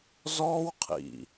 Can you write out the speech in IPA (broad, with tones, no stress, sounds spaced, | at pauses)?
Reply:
z ɔː˦ w qʰ ḭ˨